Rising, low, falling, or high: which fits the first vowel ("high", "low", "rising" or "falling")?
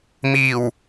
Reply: low